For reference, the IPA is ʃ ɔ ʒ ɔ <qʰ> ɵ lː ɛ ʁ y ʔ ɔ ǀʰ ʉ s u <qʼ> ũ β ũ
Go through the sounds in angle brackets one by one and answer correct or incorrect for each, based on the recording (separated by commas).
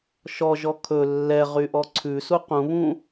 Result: incorrect, incorrect